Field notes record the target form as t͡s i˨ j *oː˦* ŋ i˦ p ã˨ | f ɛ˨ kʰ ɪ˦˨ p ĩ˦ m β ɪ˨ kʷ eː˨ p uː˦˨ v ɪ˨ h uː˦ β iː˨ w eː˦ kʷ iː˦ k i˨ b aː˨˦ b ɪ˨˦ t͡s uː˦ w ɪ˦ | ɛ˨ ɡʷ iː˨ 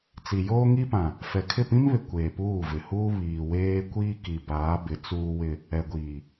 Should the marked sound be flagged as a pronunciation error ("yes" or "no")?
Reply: no